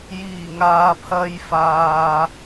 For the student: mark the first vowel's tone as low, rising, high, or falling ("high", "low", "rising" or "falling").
low